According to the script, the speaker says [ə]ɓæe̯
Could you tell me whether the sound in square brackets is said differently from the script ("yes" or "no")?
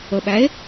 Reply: no